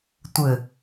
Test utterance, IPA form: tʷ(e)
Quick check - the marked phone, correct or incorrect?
incorrect